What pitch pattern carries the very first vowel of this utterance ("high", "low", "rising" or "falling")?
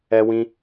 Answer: high